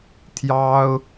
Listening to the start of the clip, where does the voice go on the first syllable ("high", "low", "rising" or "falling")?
high